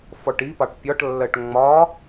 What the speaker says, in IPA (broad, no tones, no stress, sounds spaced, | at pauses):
f ɔ ʈ i p ɑ ʈ pʲ ɒ ʈ lː ɜ ʈ ŋ͡m ɒ